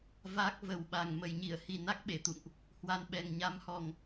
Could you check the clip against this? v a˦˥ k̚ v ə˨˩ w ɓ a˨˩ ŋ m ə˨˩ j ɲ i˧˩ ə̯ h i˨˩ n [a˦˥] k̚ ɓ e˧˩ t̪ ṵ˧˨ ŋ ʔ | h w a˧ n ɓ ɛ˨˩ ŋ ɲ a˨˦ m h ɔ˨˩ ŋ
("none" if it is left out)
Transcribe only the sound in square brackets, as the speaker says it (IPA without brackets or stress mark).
a˦˥